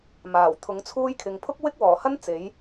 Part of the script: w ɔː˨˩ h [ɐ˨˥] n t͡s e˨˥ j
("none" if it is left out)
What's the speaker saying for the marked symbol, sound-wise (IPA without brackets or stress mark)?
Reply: ɐ˥